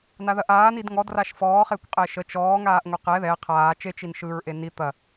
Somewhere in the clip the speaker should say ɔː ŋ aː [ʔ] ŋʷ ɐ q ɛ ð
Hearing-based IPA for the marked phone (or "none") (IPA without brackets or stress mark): ʔ